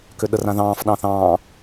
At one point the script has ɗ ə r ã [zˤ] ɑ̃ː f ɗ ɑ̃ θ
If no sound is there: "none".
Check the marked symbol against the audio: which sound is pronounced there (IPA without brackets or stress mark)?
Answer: ð